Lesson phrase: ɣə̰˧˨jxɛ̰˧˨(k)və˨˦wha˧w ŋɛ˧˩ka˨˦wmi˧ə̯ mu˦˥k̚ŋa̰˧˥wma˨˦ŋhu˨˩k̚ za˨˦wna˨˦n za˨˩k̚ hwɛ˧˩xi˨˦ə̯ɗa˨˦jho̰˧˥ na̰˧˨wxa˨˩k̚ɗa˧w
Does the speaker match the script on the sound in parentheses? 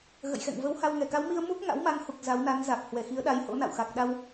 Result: no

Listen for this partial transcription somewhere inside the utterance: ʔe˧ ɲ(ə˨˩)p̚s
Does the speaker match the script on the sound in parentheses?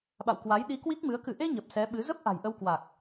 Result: yes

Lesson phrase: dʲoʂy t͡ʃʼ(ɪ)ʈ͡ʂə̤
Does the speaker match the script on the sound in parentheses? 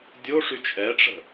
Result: no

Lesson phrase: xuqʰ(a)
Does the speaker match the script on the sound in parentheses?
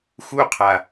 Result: yes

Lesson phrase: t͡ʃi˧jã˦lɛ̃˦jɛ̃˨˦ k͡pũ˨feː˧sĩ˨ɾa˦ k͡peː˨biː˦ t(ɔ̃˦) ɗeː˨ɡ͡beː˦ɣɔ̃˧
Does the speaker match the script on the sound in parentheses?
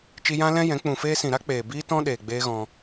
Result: yes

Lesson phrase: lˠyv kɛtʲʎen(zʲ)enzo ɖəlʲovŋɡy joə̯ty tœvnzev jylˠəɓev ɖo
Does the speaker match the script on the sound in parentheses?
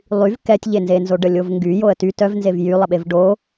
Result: no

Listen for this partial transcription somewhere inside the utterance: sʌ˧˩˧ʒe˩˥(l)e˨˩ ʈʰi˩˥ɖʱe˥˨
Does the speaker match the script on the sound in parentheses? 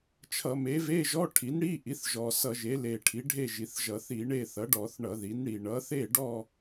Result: yes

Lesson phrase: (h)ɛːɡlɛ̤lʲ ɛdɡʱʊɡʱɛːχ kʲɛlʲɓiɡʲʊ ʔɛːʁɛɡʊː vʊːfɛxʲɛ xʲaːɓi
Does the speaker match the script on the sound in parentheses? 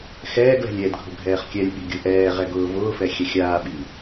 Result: no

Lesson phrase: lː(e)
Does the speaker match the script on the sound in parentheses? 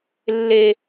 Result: yes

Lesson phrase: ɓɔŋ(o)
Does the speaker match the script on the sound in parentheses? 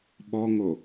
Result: yes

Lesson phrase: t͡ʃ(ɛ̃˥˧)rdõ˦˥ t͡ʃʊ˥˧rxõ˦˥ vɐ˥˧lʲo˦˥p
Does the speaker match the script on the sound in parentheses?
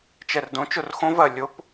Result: no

